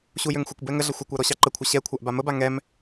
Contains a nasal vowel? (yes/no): no